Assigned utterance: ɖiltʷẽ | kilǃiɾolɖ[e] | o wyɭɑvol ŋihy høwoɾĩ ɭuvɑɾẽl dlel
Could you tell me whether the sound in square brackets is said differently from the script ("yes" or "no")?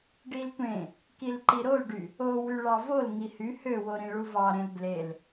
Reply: yes